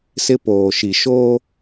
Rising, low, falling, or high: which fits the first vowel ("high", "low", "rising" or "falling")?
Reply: high